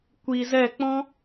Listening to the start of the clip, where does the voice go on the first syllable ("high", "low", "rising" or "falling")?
low